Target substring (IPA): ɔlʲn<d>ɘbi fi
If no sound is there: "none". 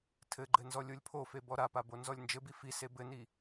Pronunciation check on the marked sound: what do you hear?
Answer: d͡ʒ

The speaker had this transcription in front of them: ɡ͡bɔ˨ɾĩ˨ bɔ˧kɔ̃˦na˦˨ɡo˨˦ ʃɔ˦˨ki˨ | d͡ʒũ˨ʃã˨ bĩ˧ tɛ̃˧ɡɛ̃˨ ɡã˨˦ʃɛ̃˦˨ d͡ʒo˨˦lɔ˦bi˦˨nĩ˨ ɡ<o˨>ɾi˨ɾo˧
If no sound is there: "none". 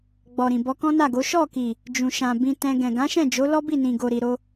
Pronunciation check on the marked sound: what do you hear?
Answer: o˨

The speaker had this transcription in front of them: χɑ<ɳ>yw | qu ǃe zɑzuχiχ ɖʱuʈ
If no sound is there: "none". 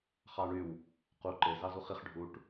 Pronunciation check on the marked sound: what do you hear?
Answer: ɳ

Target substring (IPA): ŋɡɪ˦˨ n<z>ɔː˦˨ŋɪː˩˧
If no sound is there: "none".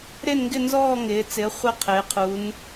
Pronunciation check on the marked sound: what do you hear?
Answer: z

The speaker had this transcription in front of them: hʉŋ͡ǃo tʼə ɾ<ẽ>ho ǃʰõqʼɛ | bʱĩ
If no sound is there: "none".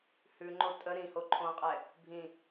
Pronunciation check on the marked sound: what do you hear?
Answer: ĩ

